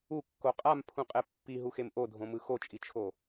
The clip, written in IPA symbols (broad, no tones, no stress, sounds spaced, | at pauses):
u kː o qʼ a m pʰ ũ qʼ ɛ pː i ɦ u x e m ʔ o dʱ õ m ɯ x o t͡ʃʼ i t͡ʃʰ o